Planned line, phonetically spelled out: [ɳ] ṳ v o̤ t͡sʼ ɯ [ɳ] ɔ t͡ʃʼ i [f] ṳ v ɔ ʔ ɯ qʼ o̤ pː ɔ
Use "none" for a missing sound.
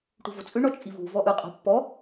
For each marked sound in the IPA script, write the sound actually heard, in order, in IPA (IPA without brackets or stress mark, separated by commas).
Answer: ʈ, ɳ, v